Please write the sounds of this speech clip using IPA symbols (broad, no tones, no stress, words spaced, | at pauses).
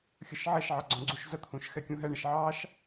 xʲəʃʕɛʃʕɑ ɡ͡ǀɔ̃ɡ͡ǀuʃzət̪ʰũʃ xɛkʲũɦɛɳəʃ ʕɑʃ